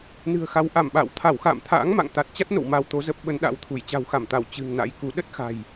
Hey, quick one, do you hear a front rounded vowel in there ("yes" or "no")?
no